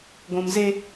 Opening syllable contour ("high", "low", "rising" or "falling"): low